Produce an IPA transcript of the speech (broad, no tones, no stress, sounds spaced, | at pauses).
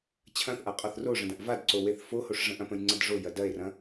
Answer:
t͡ɕʰ ɐ̃ θ ʔ a qʼ ɒ θ r o ʐ ə̃ d ɐ̃ ʔ v a d ǀ o w e θ f o h o ʂ ʐ ə̃ ʔ ɐ̃ p ə̃ j ŋ͡ǀ ɐ d ʐ o j ɐ d ɐ e̯ r ɐ̃